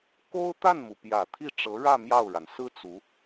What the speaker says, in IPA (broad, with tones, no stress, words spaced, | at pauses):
ko˥ʊ̯ t̪a˥˩nmu˩ pjä˨˩ t̪ʰi˥˩ ʈ͡ʂɤ˧˥ɻä˥˧ mjɑ˥˩ʊ̯ɻa˩n sɹ̩˥t͡su˧˥